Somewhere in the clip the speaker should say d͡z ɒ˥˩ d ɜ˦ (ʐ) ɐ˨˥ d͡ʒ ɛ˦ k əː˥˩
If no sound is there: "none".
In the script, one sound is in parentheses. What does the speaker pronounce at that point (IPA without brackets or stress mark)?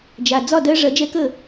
ʐ